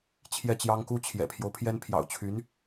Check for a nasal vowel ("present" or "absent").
absent